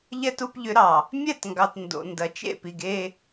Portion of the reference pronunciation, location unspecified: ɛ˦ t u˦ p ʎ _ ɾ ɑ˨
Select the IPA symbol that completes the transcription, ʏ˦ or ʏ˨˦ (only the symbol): ʏ˨˦